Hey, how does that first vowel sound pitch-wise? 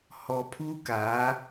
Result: low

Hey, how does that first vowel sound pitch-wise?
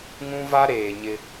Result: high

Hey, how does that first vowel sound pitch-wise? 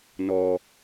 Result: low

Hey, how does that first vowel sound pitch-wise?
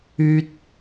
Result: high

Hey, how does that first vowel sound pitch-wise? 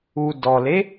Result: low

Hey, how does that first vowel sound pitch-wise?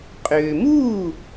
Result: low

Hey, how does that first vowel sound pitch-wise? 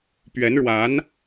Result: rising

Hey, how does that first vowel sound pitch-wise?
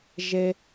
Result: low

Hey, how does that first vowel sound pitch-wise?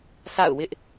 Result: falling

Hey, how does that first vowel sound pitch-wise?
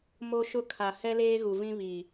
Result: high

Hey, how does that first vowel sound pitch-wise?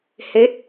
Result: rising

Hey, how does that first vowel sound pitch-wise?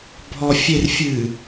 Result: low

